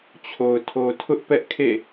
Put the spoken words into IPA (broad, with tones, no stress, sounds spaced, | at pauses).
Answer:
t͡ɕʰ o˨ ʊ̯ tʰ o˨ tʰ ʊ˦ ʔ p ɛ˦ ʔ kʰ ḛ˦˨